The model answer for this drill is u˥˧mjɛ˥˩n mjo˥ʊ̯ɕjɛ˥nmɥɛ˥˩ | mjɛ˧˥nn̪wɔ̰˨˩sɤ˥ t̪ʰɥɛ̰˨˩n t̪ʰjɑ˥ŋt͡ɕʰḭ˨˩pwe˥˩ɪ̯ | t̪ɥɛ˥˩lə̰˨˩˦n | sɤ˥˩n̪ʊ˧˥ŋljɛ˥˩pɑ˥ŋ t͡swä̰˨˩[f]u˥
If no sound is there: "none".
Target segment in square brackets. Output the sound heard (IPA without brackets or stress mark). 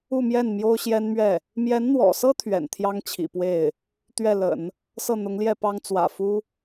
f